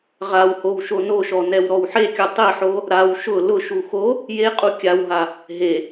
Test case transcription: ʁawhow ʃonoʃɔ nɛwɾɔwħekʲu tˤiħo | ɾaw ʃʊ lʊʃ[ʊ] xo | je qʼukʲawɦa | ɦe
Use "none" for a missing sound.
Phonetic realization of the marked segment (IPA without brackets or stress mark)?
u